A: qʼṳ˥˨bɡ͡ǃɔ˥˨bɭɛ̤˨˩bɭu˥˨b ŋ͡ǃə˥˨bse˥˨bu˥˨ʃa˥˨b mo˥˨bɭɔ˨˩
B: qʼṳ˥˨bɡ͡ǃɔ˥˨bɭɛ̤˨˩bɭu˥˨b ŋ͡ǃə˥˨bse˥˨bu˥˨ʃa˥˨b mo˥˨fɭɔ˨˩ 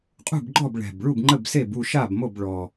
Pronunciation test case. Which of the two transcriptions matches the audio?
A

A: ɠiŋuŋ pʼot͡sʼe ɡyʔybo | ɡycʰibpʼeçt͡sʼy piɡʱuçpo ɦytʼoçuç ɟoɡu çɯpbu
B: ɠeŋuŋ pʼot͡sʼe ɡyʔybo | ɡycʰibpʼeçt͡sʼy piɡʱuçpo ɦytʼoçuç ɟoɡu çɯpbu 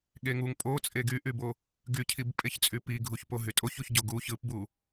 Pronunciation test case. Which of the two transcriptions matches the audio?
B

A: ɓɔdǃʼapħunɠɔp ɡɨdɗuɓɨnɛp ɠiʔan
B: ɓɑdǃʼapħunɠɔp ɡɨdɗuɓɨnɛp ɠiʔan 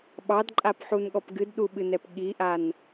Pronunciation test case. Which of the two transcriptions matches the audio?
B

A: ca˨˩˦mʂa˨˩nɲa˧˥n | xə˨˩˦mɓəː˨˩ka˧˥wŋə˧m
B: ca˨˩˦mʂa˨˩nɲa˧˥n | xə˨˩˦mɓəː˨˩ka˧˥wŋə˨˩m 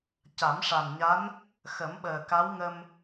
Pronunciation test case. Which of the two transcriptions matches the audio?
A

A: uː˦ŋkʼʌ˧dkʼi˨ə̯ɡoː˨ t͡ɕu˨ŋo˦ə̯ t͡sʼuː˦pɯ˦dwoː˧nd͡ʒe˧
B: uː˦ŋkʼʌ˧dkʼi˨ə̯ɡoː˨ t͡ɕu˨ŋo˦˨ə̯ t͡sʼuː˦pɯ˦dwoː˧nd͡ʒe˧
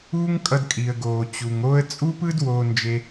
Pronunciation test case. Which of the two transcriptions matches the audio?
A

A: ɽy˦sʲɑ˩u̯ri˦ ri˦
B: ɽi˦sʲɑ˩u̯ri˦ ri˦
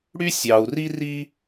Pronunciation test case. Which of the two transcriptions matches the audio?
A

